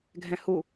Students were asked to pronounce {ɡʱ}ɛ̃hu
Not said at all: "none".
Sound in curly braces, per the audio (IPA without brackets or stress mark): ɡʱ